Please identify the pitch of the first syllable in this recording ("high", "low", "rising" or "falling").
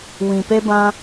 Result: low